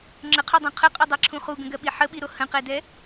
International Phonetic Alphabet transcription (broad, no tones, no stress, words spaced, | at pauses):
ŋ͡ǁəqʰodˤõ qʰəqʼodˤɜǁʰũ χuɡə̃ɡɜɓi ħəɓiɾo hə̃qɛdɛ